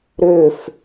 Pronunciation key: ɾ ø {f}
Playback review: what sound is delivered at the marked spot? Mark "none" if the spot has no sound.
f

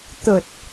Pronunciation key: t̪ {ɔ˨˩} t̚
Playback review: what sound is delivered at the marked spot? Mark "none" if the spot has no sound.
ə˨˩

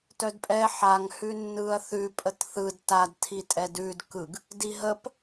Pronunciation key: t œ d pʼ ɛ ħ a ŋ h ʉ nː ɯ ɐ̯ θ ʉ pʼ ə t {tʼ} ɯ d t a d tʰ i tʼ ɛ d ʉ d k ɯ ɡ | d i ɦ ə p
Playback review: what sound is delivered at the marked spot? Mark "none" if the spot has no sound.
θ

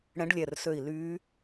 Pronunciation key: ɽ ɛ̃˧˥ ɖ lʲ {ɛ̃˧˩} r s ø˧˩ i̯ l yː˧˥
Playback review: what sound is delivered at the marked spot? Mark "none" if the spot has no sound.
ɛ˧˩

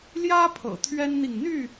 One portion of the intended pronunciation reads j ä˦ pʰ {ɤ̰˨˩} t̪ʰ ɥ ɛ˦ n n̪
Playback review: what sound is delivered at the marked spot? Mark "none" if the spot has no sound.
ɤ̰˨˩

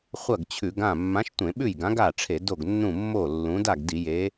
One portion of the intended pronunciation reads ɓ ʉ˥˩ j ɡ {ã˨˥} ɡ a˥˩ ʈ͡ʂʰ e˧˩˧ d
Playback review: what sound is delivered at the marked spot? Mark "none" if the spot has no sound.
ã˨˥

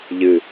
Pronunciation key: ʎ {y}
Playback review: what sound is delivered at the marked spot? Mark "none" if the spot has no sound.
ɨ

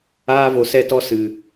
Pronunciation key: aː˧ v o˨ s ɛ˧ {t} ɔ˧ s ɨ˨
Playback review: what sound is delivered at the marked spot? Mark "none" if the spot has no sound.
t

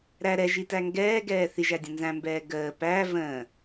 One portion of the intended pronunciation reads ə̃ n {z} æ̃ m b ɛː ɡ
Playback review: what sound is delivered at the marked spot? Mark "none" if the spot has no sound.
z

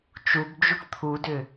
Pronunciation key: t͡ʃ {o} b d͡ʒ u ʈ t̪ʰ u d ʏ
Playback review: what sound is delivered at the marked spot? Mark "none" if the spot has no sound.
u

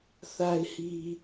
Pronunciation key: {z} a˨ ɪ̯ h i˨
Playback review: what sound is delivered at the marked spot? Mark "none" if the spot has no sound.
θ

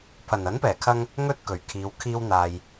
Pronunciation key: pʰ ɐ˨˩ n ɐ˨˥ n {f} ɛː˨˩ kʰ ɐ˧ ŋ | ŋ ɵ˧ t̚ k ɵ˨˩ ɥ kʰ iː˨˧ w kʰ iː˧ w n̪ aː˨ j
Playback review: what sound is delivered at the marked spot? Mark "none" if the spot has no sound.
p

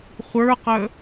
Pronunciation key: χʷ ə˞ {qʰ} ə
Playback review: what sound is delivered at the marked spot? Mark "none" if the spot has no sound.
q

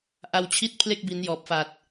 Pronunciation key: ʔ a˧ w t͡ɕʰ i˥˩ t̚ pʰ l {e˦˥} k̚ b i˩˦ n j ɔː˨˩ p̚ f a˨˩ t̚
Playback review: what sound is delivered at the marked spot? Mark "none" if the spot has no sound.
e˥˩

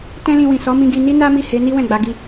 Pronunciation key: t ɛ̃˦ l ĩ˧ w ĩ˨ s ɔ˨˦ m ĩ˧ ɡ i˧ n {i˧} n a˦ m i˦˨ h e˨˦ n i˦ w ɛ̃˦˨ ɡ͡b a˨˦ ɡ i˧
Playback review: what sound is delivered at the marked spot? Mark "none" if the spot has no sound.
i˦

